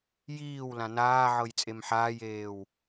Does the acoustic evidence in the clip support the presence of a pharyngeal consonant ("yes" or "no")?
yes